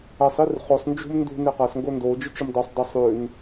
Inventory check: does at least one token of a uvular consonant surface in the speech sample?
yes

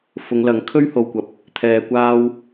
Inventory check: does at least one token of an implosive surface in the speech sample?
no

